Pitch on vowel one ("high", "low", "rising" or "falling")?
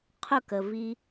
falling